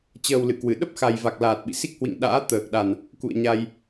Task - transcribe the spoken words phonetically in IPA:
t͡ɕ əː˨˩ w l ɨ̰˧˨ k w ɨ˧˩ ɗ ə˦˥ p̚ x a˨˩ j v a˨˩ k̚ l aː˨˩ t̚ ɓ ḭ˧˨ s i˦˥ k̚ h w ḭ˧˨ ŋ ɗ a̰ː˧˥ t̪ əː˨˩ k̚ ɗ a˨˩ n | k ṵ˧˨ ə̯ ɲ a˧ j

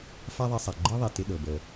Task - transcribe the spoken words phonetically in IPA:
f a˥ ðˤ e˧ sˤ a˩ ɡ͡ǃ ɤ˥ ðˤ i˩ t ɪ˧ ɗ ɤ˩ b əː˩

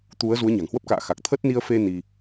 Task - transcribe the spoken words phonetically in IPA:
t̪ u˨˦ ə̯ z u˨˦ ə̯ ɲ a̤˨˩ ŋ h w ə˦˥ p̚ k a̰ː˧˨ x a˨˩ k̚ t̪ʰ ə˦˥ t̚ n i˧ ə̯ f e˧ n i˧

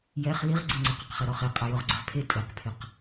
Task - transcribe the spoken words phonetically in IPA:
j ɛ χ l i ʁ ɡ͡ǀ ɪ ŋ͡ǀ ɛ q a q χ ɛ ɾ ɔ χ e qʼ a j ʊ ʁ ɡ͡ǀ ɪ ʁ pʰ e tʼ e q pʰ ɪ q

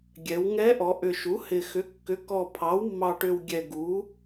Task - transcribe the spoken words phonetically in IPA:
ɡʲ ɛ˩˧ w ŋ ɛ˧˥ ʔ ɔ˩˧ ʔ ʏ˨˩ ʃ u˩˥ h ɪ˨˩ x ʏ˩˥ kː ʏ˩˥ k ɔ˨˩ pʰ ɑ˩˥ w mː ɑ˨˩ ʈ ʏ˨˩ w ɡʲ ɛ˨˩ ɡ u˩˥

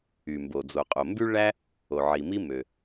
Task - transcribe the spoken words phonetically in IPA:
y˩ m b o˩ d͡z o˩ qʼ o˩ m b y˥ ɭ æ˥ | o˩ ʕ i˩ m i˥ m ø˩

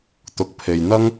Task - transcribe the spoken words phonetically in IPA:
t̪ ʊ˨ k̚ pʰ e˨ j n̪ ɐ˥ ŋ

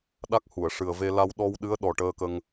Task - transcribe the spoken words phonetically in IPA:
ɗ a˦˥ k̚ h u˨˩˨ ə̯ ʂ ɨ˨˩ ə̯ v e˧ l a˧ w ɗ ɔ˧ w ɗ ɨ˧˥ ə̯ ɗ ɔ˨˩ ʈ əː˧ k ə˧ ŋ

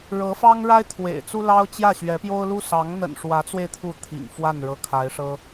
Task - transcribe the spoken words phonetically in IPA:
ɻ ɤ˧˥ f ɑ˥ ŋ ɻ a˥ ɪ̯ t̪ʰ w ḛ˨˩ ɪ̯ t͡s u˥ l ɑ˥ ʊ̯ t͡ɕ j ä˥˩ ɕ ɥ ɛ˧˥ p j o˥ ʊ̯ l u˥ s ɑ˧˥ ŋ n̪ ə̰˨˩ n ʂ w ä˧˥ t͡s w e˧ ɪ̯ t̪ʰ u˥˩ t̪ʰ ḭ˨˩ ŋ f w a˥˩ n ɻ ɤ˧˥ kʰ a˧˥ ɪ̯ ʂ ɤ˥

